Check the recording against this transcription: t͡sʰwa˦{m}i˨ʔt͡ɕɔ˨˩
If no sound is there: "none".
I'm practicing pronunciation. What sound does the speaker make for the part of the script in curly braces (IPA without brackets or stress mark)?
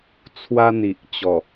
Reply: n̪